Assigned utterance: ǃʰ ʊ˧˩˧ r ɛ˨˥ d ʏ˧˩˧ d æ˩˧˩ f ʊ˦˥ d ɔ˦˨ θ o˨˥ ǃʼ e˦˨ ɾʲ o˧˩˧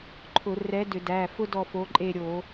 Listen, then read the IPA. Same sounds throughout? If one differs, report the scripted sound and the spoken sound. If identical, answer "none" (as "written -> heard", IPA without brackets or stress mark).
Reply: θ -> f